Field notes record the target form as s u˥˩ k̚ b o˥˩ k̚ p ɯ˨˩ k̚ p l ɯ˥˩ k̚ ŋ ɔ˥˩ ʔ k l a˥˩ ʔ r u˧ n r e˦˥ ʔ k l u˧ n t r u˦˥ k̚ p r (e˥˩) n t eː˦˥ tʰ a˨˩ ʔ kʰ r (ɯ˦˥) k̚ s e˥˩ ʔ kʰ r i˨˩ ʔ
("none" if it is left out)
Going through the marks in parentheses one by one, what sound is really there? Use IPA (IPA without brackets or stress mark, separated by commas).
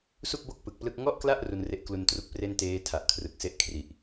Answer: e˥˩, ɯ˨˩